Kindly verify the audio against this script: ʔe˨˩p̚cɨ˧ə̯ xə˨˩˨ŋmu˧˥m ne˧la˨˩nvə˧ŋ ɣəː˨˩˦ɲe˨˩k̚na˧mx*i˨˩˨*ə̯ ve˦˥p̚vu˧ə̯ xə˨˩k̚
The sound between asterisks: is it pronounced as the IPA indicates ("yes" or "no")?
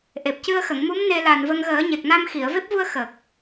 yes